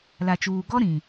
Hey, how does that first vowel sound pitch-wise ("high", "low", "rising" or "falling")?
low